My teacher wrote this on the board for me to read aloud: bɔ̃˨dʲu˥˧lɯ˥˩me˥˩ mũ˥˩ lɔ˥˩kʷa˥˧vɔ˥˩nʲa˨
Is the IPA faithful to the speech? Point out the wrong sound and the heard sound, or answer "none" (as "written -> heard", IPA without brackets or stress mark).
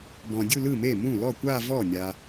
none